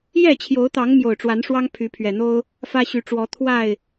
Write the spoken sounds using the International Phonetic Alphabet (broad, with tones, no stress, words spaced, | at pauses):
jɛ˥˨t͡ɕʰjo˨˦ʊ̯t̪ɑ˨˦ŋ mjo˨˩ʊ̯ʈ͡ʂwa˨˦nʂwɑ˦ŋ pʰy˨˦pʰɥɛ˨˩n̪o˦ʊ̯ | fä˦ɕy˨˦ ʈ͡ʂwɔ˨˦ t̪ʰwa˥˨ɪ̯